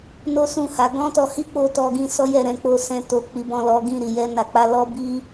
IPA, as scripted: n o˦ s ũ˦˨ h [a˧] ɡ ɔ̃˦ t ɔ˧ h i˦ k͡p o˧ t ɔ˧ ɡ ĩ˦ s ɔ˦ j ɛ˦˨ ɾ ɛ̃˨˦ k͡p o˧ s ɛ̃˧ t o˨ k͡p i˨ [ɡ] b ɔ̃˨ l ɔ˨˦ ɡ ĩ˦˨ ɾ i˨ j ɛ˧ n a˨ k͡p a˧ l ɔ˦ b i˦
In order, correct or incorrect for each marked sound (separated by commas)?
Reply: incorrect, incorrect